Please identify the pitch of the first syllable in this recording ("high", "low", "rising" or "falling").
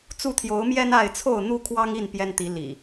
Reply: falling